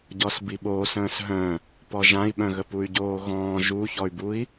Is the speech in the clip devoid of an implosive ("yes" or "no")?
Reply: no